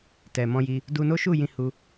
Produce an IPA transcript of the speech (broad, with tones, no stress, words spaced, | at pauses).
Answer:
tɛ˨mɔ̃˧ji˧ | du˧no˦ʃu˦˨ jĩ˧hu˧